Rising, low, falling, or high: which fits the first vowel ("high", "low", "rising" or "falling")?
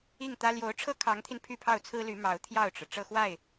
falling